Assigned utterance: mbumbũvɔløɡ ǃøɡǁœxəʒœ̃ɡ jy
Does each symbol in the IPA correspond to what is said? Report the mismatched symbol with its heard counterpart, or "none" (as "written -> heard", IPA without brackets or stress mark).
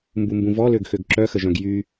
ǃ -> x